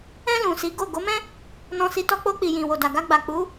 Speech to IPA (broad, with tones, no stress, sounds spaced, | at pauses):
ɛ̃˧ l ũ˨ s i˨˦ ɡ o˦˨ ɡ o˨˦ m ɛ̃˦ | n ɔ̃˧ s i˧ t ɔ˧ k͡p o˧ k͡p i˨ j ĩ˨ w o˨ d a˨ ɡ a˧ ɡ͡b a˨ k͡p u˨˦